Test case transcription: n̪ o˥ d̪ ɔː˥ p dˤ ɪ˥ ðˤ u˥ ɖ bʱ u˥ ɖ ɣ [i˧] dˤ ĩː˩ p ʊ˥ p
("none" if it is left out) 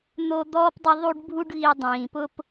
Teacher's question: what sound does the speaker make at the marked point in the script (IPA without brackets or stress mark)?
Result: i˧